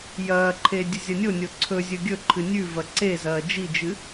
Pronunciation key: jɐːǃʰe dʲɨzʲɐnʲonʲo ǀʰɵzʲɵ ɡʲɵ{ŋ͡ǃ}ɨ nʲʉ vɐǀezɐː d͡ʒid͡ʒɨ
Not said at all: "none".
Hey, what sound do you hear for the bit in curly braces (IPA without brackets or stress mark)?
ǃʰ